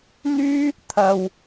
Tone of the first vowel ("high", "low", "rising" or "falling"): high